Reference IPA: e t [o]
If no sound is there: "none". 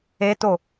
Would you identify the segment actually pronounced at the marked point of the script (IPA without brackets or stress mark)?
o